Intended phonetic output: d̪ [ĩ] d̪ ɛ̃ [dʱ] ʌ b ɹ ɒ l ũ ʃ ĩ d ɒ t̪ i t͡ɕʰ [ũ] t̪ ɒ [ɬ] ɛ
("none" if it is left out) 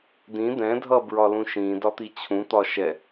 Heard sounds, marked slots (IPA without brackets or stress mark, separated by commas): ĩ, dʱ, ũ, ʃ